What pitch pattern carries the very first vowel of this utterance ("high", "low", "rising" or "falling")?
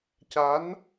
rising